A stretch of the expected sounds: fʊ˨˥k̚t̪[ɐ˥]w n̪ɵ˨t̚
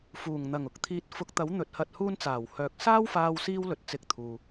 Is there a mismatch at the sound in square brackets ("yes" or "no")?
yes